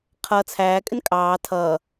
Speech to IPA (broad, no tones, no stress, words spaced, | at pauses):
qʰʌ t͡sʰæːkʼɪn kʼɑː tʰʌː